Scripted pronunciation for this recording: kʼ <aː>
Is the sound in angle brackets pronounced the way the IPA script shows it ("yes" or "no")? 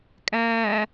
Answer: no